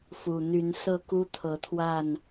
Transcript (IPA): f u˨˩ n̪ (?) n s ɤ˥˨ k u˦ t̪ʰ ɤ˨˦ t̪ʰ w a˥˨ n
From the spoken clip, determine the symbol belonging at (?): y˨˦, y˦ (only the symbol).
y˨˦